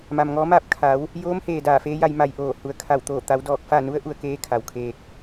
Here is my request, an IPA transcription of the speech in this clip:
ma˩mŋɔː˧˥maː˥˨p̚ kʰa˩˧w | joː˧˥mheː˩ daː˧˩feː˧˥ja˧j ma˧jʔoː˧˩ hu˩ə̯kʰa˧˩w t̪oː˧˩t̪a˩˧w dɔː˧˩k̚ fa˥˨nu˧˥ə̯ ʔu˩˧ə̯keː˧˥ kʰa˩wkʰeː˧k̚

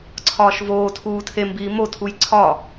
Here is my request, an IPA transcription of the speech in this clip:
ǀʰɒːʃvoːtʰuː tʰembiː motʰuj ǀʰɒ

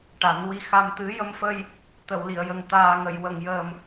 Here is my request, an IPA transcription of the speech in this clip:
ʈa˨˩˦nwi˧xa˧mt̪ɨ˧˥ jə˧mfə˧j | t̪ə˨˩˨wli˨˩˨ə̯jə˨˩ŋ t̪aː˨˩ŋə˨˩˨jwə˨˩˨ŋjəː˨˩m

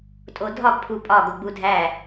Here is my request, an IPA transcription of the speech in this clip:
tʼodʱɒɡ pʰupʼɒ ɡoɡ͡budʱæ

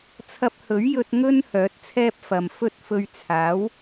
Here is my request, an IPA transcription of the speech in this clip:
t͡sʰɐ˧p̚hɵ˨˥ɥjɵ˧t̚ ŋɵ˥n hœː˨˥t̚t͡sʰɛː˥p̚ fɐ˨mfɵ˥t̚ fɵ˧ɥt͡sʰaː˨˥w

